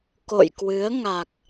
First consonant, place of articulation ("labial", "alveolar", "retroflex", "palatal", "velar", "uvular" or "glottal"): velar